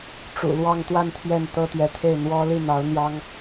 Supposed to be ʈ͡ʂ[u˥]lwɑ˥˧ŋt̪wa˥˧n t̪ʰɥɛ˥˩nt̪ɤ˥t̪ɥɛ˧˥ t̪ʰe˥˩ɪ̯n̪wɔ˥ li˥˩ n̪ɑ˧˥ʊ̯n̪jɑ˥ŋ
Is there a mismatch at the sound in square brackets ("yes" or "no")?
yes